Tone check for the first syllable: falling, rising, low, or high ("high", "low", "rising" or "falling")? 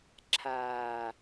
low